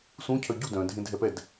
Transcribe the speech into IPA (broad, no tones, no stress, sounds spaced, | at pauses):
s ũ cʰ œ ɟ u d œ̃ dʱ ẽ dʱ ɛ p ɛ d